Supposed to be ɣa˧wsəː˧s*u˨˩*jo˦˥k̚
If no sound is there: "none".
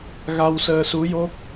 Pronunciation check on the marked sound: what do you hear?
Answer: u˧˥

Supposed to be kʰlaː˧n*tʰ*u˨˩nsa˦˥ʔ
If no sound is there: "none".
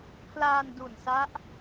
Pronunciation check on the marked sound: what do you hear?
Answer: d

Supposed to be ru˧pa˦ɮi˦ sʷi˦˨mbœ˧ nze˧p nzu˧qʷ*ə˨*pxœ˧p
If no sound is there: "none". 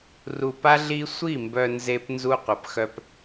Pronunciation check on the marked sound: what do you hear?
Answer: ə˨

